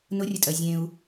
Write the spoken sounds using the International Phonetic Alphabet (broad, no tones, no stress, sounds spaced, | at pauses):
n ʊ rʲ ə tʼ ɜ zʲ ẽ u̯